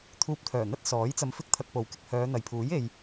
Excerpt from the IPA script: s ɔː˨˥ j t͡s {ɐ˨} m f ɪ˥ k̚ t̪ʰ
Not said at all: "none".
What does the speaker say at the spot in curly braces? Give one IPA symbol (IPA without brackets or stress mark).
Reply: ɐ˧